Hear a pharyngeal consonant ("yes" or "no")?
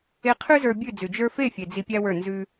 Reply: no